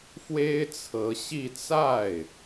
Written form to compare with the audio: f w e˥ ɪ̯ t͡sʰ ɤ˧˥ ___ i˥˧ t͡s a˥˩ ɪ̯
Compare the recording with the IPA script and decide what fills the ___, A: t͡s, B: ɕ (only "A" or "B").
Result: B